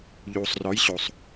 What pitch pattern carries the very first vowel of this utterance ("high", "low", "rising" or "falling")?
low